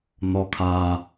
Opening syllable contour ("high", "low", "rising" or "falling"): high